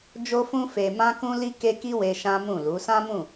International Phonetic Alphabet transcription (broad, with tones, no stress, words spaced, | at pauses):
d͡ʒo˧fũ˧ fe˨mã˧kũ˧ li˦ke˦ki˦we˧ ʃã˦mũ˦˨lu˨˦ sã˦mũ˦˨